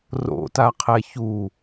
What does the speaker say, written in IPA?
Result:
r o̰ t a qʰ ɛ ç u

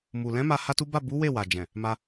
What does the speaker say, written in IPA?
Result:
m u˨ l ɛ̃˨˦ m a˧ h a˦ t u˦ b a˦˨ b u˨˦ w e˦˨ w a˨ d͡ʒ ɛ̃˨ | m a˧

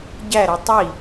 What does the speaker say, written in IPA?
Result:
ɟ æ ɾ ʌ tˤ i

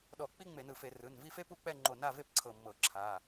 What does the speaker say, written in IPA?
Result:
ɗ ɔ˧˩˧ k͡p i˥ ŋ͡m e˧˩˧ n ɯ˧˩ f e˧˩˧ r ɯ˩˧˩ n v i˥˨ f e˥ p u˥˨ k͡p ɛ˥˨ ŋ͡ǃ o˧˩ n a˥˨ v e˥˨ p ǀʰ ɤ˧˩ mː ɤ˧˩˧ ǁʰ a˩˧˩

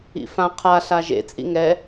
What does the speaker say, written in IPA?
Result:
ḭ f ã qʰ a ɬ a ʒ ḛ t͡sʼ ḭ ŋ ɛ

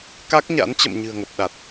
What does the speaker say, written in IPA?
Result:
k a˦˥ k̚ ɲ a̰˧˥ n t͡ɕ ə̰˧˨ m ɲ ɨ̤˨˩ ə̯ ŋ ə˨˩ p̚ ɗ a˨˩ t̚

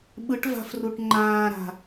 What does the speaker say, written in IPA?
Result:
ɓ ɯ ʈ v a̤ f r u ʈ ŋ͡ǃ ãː ɾ a̤

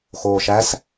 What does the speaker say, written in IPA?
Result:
x oː ʃ æ s

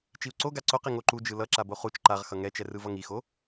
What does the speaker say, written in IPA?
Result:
t͡ʃ i u̯ ǀ o ɡ a ǀ o q i ŋ o ǃ u d͡ʒ ɯ l ʌ ǁ a b o χ u t͡ʃ ǃ a ʁ x ʌ ŋ ɛ t͡ʃ ɛ r ɯ v ʌ ŋ i x o

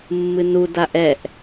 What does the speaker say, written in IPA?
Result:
mː ɨ n u d a ʔ ɛ ʔ

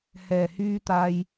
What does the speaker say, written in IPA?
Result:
h ɛː˨˩ h yː˧ t̪ aː˨ j

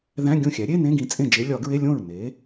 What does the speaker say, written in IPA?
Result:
ð æ̃˧˥˧ ɡʲ õ˥˩ xʲ æ˩˥ ɾʲ e˧˥˧ n ẽ˧˥˧ ɡ ĩ˩˥ t͡sʼ ẽ˥˩ d͡ʒ e˧˥ lʲ ɒ˨˩˦ ɡ ɹ e˧˥˧ lʲ õ˥˩ ɹ n e˩˥

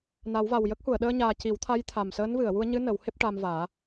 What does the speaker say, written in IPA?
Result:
n a˨˩˦ w v a˨˩ w j ə˦˥ k̚ h u˨˩˨ ə̯ ɗ əː˧ ɲ aː˨˩ c i˨˩˦ w t̪ʰ a˧˥ j t̪ʰ a˨˩ m s əː˧˥ n v ɨ˨˩˨ ə̯ w u˧ ə̯ ɲ ɨ˧˥ n ə˨˩˦ w h e˦˥ p̚ ʈ a˧ m v aː˨˩˦

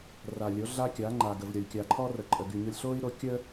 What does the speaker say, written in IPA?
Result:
r a˨ lʲ o˨˦ ɮ a˦ kʲ a˨˦ ŋ͡ǃ a˨ ɡ ə˨ v ɾʲ ɔ˨ lʲ kʲ a˨ ǃʰ ɔ˦ r ə˨ ǃʼ ə˨ ɡ y˨ ɲ o˦ lʲ ɬ o˦ i̯ ɾ o˦ kʲ ə˦

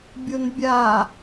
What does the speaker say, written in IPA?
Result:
bʲ o n bʲ a

